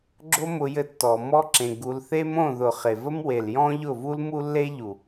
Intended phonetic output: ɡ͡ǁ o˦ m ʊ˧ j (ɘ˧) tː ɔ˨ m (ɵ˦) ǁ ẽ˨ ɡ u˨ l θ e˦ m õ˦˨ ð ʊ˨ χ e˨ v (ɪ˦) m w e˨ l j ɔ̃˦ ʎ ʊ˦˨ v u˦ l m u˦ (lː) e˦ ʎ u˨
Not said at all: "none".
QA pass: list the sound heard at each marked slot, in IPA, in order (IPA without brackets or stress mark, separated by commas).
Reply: ɘ˧, ɔ˦, ə˦, lː